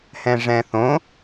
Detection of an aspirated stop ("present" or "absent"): absent